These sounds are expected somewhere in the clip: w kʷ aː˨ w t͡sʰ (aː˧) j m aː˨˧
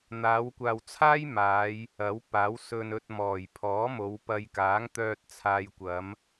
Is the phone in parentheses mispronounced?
yes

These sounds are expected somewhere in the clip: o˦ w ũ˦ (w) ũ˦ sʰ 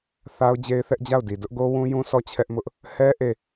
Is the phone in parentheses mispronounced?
yes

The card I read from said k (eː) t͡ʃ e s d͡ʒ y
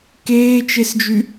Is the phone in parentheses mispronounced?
no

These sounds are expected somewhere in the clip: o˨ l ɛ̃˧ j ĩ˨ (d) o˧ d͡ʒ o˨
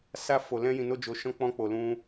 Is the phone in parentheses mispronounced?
yes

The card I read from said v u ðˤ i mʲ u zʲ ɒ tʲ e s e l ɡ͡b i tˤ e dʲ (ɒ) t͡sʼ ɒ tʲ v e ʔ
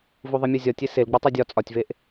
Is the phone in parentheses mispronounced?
no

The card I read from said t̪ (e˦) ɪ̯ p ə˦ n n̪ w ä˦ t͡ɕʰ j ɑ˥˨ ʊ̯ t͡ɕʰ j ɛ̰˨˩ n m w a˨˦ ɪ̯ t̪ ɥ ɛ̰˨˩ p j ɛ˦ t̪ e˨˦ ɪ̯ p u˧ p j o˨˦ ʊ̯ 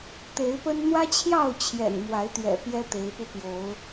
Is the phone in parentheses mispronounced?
yes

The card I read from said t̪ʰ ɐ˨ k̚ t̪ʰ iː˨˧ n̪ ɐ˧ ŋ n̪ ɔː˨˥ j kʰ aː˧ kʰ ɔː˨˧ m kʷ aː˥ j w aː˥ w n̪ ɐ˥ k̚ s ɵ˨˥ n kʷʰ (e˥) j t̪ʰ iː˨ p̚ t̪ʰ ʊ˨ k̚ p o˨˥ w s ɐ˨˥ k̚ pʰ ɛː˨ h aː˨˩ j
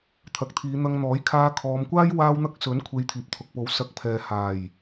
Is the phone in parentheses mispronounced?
yes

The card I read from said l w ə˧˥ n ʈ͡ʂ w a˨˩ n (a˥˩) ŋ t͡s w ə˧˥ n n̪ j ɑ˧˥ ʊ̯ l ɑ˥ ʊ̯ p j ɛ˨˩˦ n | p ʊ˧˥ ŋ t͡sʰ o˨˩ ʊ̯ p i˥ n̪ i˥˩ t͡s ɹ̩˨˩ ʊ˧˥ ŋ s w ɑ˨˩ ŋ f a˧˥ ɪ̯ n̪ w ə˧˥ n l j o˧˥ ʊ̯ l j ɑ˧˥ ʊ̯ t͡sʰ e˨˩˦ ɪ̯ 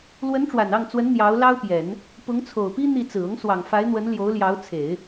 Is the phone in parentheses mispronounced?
yes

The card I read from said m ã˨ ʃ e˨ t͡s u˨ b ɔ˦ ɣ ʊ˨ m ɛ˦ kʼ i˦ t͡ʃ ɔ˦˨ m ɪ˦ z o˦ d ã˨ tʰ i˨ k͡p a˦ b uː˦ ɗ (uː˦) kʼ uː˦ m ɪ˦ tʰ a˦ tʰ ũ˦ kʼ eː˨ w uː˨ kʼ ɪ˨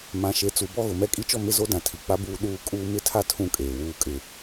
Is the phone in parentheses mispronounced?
no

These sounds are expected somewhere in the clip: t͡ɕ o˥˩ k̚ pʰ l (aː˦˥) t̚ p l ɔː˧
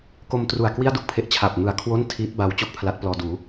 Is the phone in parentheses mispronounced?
yes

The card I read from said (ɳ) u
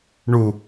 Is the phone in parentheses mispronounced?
no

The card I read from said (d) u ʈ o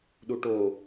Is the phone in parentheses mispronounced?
yes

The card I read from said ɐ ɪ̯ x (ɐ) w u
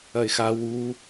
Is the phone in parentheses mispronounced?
yes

